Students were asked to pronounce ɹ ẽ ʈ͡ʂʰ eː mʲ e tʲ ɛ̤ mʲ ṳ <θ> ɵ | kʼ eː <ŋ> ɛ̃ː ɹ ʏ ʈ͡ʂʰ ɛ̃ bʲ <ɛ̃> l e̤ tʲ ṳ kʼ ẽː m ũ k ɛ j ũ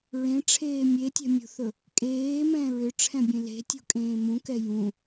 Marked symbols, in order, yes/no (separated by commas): yes, no, no